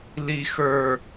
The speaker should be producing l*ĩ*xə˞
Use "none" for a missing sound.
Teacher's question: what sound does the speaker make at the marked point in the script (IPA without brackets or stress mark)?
i